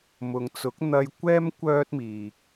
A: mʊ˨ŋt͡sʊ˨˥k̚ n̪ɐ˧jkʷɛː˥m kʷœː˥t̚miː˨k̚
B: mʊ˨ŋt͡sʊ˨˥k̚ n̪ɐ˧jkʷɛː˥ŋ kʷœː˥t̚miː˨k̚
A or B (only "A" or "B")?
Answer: A